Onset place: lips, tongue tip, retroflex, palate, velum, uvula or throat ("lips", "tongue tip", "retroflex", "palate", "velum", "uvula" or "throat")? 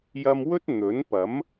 palate